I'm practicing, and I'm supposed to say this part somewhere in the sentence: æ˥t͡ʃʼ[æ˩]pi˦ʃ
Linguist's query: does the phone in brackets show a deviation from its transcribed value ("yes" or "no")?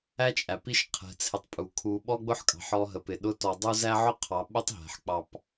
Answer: no